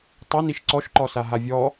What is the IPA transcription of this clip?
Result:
tˤ a n i ʃ ǀ ɔ ʃ ǃ ɔ s a ɦ a vʲ ɔ

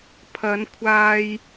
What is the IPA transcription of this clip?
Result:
pʰ ɐ˨˧ n kʷʰ aː˧ j

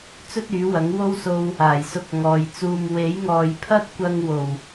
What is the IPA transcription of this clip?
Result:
t͡s ɵ˥ t̚ yː˨˥ w ɐ˨˥ ŋ w o˥ w s o˧ w | aː˨˩ j s ʊ˧ k̚ ŋ ɔː˨ j t͡s uː˧ m w e˨˥ j ŋ ɔː˨ j pʰ ɐ˥ t̚ kʷ ɐ˧ ŋ w o˨˩ w

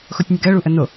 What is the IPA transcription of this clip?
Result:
x o tʲ nʲ ə ɡ ɜ ɭ u ʔ ə n o

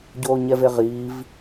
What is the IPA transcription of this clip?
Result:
ɟ oː ɲ ɛ v e ʁ iː v

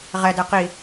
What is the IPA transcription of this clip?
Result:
ʁ ɛ d ɛ q i

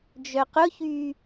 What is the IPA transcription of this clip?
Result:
d͡ʒ œ q ʊ ç yː

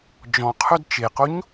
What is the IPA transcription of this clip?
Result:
d͡ʒ ɔ̃ qʰ œ d t͡ʃ e q o ɲ

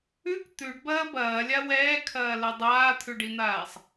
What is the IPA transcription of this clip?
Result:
ʉ k t̪ ʉ ɖ b ɐː b ɐː lʲ a w ɛː kʰ ɐː l ɛ dˤ aː t̪ʰ ʉ ɖ i n̪ aː sˤ

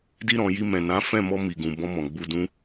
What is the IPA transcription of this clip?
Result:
d i˧ ɾ ɔ̃˨ j i˧ m ɛ̃˨ n ã˨˦ f ɛ̃˦˨ m ɔ˧ m i˨ ɡ ũ˨ b ɔ̃˧ m ɔ̃˨ ɡ͡b u˧ d ũ˦

